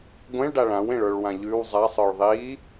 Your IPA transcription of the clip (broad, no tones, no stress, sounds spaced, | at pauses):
ɡʷ ẽ ɭ ɖ a ɭ ã w ẽ ɭ ə˞ ɭ w ã ʎ ʉ w zˤ a sˤ ə˞ ɭ ðˤ i